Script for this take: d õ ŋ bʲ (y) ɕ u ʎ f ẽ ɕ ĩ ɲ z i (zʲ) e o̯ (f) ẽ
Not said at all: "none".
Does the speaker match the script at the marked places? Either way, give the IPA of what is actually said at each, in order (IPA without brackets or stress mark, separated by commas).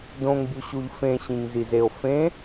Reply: u, z, f